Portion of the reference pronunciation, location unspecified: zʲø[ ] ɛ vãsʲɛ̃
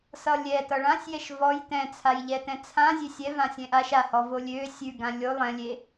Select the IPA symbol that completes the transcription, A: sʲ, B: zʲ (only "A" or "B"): A